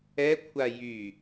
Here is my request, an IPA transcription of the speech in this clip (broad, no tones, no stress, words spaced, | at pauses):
ɛkʷʰa jy